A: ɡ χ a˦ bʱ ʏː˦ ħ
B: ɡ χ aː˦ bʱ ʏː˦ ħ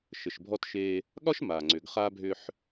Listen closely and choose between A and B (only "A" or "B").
B